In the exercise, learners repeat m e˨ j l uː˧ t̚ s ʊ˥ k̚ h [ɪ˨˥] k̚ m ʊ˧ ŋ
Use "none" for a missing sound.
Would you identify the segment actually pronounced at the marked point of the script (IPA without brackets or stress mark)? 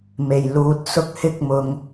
ɪ˥